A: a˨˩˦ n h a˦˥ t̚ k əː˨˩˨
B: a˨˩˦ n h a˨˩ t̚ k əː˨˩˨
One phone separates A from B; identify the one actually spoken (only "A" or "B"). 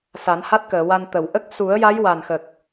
A